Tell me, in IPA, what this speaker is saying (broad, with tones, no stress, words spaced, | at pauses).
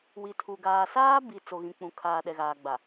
wi˨tʰu˨ ɡaː˨saː˦ bi˨ t͡so˨ɣĩ˨k͡pũ˨kʰaː˨ ɗɛ˨ɣaː˨ɡ͡ba˨